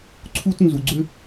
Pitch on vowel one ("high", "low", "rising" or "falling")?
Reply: high